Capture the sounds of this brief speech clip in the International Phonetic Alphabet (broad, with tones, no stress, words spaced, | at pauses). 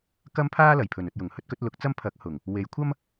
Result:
kɐ˥mpʰaː˥lɐ˨˩j pʰɵ˨˩nɵ˨t̚jʊ˨˩ŋ hɵ˥t̚kɵ˨˥t̚lʊ˨˥k̚t͡sɐ˥m pʰɐ˨˥k̚ hʊ˨˩ŋ | we˨˥jkʷʰɐ˥m